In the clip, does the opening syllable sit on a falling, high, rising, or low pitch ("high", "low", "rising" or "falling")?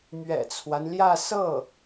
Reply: low